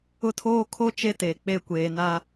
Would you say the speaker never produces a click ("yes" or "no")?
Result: yes